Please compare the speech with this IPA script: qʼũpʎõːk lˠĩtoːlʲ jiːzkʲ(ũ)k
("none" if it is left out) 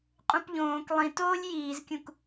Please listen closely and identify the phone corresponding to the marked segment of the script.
ũ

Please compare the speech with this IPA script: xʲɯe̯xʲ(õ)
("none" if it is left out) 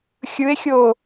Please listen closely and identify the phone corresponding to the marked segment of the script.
o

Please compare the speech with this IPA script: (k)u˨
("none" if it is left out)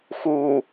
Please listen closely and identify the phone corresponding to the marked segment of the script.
x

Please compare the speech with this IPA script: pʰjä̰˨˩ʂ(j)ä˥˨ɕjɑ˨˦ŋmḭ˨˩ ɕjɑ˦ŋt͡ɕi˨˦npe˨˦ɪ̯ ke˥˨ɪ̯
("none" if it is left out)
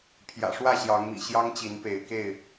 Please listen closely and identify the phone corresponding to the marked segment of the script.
w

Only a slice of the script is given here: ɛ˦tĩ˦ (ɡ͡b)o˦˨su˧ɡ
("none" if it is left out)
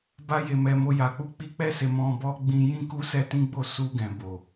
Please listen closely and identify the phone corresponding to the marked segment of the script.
ɡ͡b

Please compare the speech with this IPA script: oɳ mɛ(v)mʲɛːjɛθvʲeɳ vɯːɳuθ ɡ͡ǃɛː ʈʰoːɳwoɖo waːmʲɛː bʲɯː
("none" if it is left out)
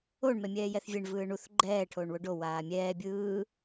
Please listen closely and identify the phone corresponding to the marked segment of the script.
none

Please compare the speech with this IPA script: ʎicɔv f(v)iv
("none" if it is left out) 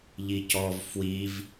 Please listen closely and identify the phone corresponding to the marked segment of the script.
w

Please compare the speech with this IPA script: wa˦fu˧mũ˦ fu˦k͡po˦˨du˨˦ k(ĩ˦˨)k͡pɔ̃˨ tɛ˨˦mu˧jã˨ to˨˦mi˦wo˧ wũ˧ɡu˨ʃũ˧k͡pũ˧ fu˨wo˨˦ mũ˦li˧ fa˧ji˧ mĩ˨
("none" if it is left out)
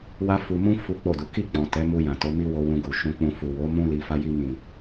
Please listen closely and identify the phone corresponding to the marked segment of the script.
i˦˨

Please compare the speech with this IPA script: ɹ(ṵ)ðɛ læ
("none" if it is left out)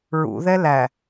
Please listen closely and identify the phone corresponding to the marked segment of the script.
ṵ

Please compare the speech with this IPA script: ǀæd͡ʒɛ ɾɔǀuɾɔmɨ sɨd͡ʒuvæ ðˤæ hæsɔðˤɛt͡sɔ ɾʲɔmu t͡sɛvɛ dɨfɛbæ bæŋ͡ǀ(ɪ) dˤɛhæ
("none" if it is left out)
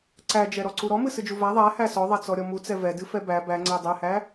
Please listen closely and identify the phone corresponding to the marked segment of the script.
ɛ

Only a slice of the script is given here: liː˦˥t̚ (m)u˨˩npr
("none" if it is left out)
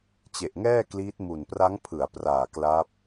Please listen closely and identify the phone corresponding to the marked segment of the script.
m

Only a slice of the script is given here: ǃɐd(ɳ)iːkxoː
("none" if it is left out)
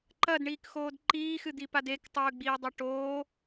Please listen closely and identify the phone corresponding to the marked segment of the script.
ɳ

